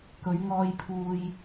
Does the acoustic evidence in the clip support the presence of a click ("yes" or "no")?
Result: no